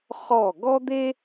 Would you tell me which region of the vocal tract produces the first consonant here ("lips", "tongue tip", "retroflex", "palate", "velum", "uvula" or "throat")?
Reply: uvula